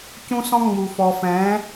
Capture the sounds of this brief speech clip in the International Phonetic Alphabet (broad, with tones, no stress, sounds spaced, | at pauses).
c ũ˦ s ɔ̃˦ ŋ͡m u˨ f ɔ˨ f ɛ̃˨˦